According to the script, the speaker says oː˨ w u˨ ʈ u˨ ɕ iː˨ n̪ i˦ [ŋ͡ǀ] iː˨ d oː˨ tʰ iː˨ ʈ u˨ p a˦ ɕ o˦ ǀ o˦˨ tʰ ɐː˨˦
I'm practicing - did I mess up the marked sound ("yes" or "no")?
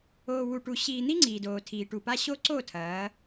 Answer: no